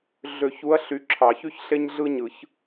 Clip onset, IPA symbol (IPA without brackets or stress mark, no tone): ɮ